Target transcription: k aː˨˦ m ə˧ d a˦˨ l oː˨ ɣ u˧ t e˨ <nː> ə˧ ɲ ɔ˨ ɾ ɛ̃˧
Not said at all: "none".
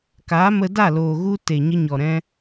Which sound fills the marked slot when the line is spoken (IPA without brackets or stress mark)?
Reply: ɲ